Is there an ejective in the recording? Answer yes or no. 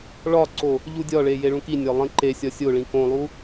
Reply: no